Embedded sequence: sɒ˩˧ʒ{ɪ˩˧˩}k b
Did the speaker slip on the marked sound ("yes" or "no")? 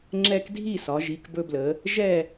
yes